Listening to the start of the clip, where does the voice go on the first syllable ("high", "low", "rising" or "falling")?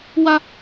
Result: high